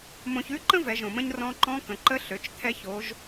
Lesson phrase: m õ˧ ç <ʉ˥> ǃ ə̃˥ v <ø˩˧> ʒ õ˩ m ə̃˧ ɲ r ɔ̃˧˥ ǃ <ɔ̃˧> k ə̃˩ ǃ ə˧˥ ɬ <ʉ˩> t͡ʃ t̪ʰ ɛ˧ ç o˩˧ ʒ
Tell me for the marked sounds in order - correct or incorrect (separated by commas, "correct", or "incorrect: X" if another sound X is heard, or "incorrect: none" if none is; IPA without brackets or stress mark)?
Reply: correct, incorrect: ɛ˩˧, incorrect: ɔ̃˧˥, incorrect: ø˩